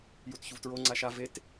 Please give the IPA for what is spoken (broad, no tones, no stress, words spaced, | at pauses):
jutçuvtɹo ŋ͡ǀaʃa vet